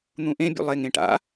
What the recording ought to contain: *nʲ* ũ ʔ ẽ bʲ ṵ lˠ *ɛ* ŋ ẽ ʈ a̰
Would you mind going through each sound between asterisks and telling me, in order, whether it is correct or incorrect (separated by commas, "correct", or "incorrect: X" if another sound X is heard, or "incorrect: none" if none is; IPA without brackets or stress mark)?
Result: incorrect: n̪, incorrect: e